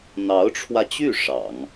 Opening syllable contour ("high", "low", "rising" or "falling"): rising